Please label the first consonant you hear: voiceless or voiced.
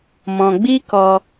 voiced